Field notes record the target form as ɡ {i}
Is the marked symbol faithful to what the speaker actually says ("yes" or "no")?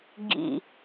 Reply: no